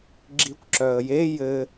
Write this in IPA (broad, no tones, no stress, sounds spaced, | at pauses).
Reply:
ɡ͡ǁ i kʷ ǁ œ ə̯ j e j ɘ